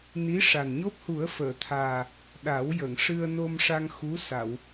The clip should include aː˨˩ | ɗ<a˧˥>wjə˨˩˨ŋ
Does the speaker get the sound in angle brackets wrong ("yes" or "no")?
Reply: yes